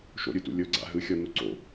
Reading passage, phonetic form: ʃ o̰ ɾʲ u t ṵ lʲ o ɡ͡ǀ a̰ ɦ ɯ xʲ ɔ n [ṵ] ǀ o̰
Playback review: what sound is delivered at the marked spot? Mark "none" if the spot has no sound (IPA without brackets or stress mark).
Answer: u